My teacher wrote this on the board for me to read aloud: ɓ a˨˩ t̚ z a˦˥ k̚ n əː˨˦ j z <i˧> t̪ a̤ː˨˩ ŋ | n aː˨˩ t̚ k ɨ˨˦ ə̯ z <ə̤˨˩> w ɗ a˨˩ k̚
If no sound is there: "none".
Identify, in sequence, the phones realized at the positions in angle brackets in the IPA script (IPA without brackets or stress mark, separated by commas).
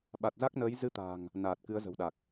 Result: ɨ˧, ə̤˨˩